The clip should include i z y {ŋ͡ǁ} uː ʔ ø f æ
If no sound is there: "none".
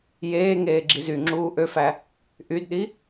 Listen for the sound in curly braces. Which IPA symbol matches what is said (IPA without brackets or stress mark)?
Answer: ŋ͡ǁ